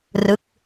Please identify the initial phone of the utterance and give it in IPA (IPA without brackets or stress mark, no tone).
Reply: r